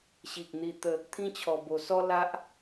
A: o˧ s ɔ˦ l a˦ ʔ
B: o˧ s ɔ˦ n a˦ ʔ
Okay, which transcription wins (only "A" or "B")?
A